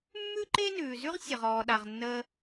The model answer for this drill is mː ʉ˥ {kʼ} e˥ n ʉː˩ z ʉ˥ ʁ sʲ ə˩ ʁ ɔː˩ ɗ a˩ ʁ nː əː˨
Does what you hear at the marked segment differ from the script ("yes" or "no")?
yes